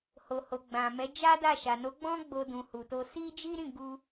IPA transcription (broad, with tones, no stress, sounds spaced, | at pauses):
h o˨ h o˨ ɡ͡b ã˨ m ɛ˨˦ d͡ʒ a˦ d a˦˨ ʃ a˨ n o˨˦ ɡ͡b ɔ̃˦ ɡ͡b o˧ d ũ˧ h u˧ t o˦ s i˦ d͡ʒ i˦ ɾ ĩ˦˨ ɡ u˧